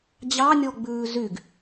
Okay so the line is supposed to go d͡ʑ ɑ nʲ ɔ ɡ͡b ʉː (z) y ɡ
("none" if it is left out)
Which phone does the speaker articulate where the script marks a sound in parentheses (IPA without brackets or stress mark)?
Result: z